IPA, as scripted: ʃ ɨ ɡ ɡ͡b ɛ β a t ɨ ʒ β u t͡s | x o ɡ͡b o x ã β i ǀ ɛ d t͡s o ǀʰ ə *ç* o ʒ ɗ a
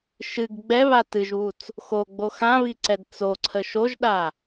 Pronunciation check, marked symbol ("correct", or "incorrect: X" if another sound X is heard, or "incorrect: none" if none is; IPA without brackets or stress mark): incorrect: ʃ